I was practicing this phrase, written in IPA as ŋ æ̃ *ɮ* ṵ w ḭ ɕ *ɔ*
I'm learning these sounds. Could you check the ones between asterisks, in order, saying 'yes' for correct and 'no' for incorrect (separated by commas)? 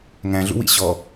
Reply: yes, yes